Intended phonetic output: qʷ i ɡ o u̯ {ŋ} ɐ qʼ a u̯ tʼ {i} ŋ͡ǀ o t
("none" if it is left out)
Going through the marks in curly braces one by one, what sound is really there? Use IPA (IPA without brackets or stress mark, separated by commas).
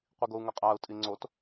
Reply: ŋ, i